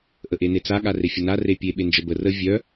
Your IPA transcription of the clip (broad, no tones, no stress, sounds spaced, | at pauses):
ʔ ə ʔ e n e t͡s a ɠ a r e fʲ ə n a r e pʲ e ɓ e n d͡ʒ ə b ə r ə vʲ œ